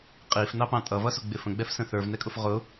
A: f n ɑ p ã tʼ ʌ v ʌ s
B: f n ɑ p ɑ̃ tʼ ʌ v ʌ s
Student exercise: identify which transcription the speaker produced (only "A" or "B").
B